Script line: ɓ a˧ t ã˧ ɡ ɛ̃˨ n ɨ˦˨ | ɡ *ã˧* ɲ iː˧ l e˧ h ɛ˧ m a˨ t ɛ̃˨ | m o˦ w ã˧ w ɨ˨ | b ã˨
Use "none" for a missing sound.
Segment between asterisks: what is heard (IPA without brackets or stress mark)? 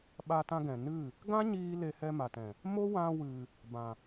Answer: ã˦